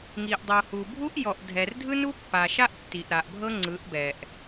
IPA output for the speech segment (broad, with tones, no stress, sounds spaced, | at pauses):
ŋ i˨ ʔ dˤ o˨ h u˨ bʱ u˦ ʔ j ɔ˨ ʔ dʱ ɛ˨ r dʱ ɯ˦ n u˦ pː a˨ ʃ a˦ ʔ tː i˨ ʔ ɾ a˨ ʔ bʱ ɤ˦ ŋ͡ǀ ɯ˨˦ ʔ b ɛ˨ ʔ